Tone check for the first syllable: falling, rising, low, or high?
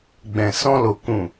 low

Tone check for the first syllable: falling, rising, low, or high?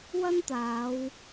high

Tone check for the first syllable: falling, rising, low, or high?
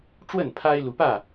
falling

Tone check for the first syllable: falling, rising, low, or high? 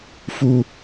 high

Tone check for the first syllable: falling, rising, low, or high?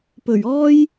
low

